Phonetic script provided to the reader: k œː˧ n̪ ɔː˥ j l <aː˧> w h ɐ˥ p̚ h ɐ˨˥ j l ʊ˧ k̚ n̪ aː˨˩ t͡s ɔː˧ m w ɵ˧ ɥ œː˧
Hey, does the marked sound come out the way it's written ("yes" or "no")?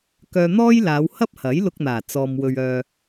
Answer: no